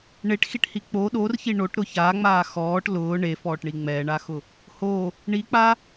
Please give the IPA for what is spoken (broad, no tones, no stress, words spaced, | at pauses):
ɳeʈxiʈhi k͡po ɗorçi ɳoʈɾʊ çaːŋ͡maː xɔːʈ lʊː ɳefɔːʈɳi ŋ͡mɛːɳaxʊ | ho | ɳik͡pa